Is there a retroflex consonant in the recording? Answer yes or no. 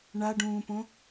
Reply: yes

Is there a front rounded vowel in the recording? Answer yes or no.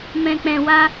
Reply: no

